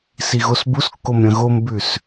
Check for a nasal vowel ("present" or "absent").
present